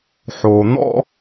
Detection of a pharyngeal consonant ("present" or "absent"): present